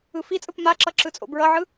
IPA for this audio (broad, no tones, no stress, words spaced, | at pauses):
ɯfit͡sʼɯp maǁʌ ǁɯt͡sʼo̰bɹʌʕɯ